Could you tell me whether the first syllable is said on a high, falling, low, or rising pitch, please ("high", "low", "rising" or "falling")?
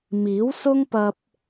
rising